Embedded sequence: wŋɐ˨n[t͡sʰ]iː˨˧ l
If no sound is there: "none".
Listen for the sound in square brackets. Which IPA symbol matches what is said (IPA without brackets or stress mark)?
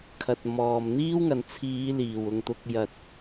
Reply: t͡sʰ